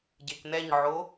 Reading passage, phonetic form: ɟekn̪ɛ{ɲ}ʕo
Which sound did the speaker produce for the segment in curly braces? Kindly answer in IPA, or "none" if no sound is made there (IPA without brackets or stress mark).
ɲ